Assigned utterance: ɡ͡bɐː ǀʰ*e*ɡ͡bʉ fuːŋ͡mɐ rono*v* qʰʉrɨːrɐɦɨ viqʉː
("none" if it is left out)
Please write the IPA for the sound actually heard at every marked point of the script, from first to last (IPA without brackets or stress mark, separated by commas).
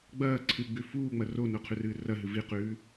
ɨ, none